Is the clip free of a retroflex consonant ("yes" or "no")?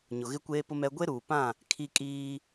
yes